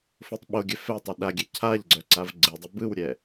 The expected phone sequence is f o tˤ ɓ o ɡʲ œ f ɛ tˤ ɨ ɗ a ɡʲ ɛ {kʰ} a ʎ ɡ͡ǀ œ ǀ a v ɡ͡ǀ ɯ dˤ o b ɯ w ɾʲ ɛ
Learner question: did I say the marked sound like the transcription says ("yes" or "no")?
no